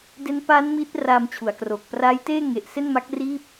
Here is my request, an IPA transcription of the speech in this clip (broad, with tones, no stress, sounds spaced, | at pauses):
d e˦˥ n p aː˦˥ n m iː˦˥ t̚ r aː˧ m t͡ɕʰ u˩˦ a̯ k r oː˨˩ k̚ p r aː˦˥ j t eː˥˩ ŋ e˨˩ ʔ s e˥˩ n m a˦˥ k̚ r iː˥˩ p̚